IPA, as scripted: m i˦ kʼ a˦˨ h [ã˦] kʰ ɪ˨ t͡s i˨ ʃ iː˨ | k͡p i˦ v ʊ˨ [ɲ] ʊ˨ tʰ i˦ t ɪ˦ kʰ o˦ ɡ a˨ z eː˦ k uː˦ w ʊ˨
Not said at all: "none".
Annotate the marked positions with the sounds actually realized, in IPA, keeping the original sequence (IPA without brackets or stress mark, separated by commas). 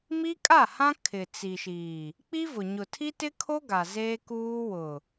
ã˦, ɲ